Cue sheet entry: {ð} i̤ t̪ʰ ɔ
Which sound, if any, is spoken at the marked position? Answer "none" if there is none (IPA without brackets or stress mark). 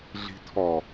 ɮ